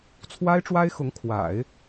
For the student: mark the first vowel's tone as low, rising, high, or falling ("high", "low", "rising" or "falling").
high